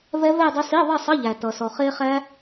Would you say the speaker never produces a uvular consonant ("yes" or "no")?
no